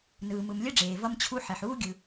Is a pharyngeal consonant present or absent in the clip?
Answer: present